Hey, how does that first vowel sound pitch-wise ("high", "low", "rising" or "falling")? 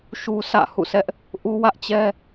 high